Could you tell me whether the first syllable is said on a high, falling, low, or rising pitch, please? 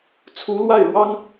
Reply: rising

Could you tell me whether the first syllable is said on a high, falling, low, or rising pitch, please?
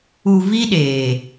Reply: low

